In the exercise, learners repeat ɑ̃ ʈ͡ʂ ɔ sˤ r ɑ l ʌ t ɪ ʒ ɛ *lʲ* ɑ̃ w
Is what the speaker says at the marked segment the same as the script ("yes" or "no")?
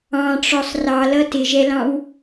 no